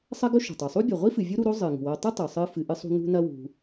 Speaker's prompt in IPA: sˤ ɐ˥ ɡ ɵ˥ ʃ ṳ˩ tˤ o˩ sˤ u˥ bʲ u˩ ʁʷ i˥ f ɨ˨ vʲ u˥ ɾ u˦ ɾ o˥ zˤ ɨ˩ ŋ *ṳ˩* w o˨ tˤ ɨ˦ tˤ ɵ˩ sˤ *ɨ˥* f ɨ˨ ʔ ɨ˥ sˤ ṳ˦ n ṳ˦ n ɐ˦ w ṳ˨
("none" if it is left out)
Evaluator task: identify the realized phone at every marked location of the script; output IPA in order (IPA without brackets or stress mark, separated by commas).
ṳ˩, ɨ˥